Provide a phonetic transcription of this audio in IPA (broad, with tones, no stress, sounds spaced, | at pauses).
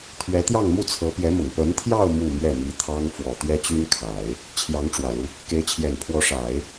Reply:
t̪ʰ ɥ ɛ˧˥ t̪ j ɑ˥˧ ŋ m u˥˩ t͡sʰ ɤ˧˥ p j ɛ˧˥ m ʊ˨˩ ŋ p ə˧˥ n t̪ʰ j ɑ˥˧ ʊ̯ m u˥˧ m ɥ ɛ˥˩ m i˧˥ t̪ʰ ɑ˥ ŋ f w ɔ˨˩ t̪ ɥ ɛ˥ t͡ɕ y˥ n kʰ a˨˩˦ ɪ̯ | t͡ɕʰ j ɑ˧˥ ŋ ʈ͡ʂ w ä˨˩ l u˦ | k e˧˥ ɪ̯ t͡ɕʰ j ɛ˨˩ n pʰ w ɔ˧˥ ʂ a˨˩˦ ɪ̯